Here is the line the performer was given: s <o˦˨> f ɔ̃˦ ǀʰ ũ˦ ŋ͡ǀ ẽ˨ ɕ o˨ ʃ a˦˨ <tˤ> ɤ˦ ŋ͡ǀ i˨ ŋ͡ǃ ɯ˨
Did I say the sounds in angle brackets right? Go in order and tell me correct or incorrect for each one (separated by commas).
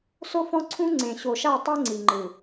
incorrect, correct